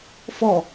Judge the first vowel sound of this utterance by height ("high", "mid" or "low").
mid